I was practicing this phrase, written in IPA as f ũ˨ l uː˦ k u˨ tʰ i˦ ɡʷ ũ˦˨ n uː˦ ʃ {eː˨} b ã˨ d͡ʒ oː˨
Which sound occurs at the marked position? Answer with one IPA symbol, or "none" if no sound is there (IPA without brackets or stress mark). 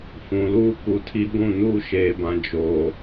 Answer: eː˨